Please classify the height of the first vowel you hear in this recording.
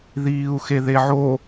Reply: high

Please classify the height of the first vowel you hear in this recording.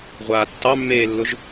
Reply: low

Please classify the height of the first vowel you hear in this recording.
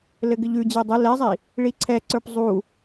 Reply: mid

